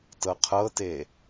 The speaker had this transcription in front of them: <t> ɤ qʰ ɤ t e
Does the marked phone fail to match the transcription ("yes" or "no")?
no